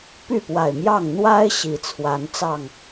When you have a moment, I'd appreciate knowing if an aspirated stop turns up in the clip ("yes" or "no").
yes